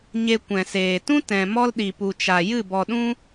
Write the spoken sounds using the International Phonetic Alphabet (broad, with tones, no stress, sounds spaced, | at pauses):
ɲ e˧ kʷ ɛ̃˨ s eː˨ t ũ˦ t ɛ̃˨ m ɔ˦ l ɗ i˨ p u˨ t͡ʃ a˨ j ɨ˦˨ b ɔ˨ ɗ ũ˦